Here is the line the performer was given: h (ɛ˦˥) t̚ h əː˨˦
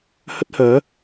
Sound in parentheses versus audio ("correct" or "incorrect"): incorrect